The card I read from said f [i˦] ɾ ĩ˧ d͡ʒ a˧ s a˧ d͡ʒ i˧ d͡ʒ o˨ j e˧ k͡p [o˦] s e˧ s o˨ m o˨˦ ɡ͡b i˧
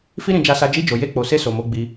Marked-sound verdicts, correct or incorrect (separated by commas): correct, incorrect